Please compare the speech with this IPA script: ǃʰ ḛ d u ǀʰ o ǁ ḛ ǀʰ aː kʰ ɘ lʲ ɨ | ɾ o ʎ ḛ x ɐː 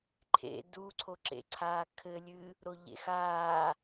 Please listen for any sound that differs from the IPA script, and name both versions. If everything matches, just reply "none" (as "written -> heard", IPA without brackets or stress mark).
ɐː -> aː